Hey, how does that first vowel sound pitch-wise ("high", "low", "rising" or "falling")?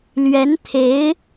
rising